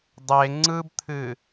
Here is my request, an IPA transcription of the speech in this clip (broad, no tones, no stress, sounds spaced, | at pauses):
dˤ e ŋ͡ǀ ɯ b t̪ʰ ɨ